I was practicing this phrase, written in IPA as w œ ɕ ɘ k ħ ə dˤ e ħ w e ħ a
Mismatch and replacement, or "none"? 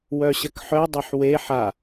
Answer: ə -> œ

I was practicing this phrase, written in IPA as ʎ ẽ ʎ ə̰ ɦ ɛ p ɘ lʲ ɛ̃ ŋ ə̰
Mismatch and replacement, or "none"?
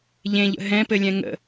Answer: ɛ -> ɛ̃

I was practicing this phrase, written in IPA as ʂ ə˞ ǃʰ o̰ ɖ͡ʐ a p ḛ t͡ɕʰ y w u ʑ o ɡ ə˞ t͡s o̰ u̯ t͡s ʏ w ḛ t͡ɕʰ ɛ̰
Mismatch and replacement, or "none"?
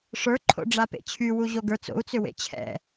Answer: none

